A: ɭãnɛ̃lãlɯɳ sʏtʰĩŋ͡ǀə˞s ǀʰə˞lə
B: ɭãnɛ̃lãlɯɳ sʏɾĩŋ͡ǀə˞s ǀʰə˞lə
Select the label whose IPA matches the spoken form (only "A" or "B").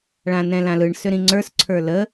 B